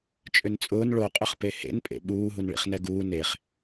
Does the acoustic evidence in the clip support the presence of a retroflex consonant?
yes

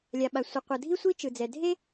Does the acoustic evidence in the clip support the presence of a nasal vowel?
no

